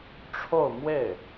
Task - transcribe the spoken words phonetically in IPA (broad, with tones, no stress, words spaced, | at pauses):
ʈ͡ʂʰo˥˧ʊ̯ mwe˥˩ɪ̯